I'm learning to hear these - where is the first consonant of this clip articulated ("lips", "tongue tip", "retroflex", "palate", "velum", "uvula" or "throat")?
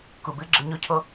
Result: velum